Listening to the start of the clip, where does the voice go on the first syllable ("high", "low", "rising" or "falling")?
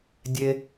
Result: low